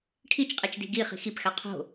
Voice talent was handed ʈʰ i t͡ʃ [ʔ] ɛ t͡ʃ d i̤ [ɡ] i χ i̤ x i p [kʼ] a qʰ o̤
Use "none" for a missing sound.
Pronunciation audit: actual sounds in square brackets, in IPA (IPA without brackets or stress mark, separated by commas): qʼ, ɡ, x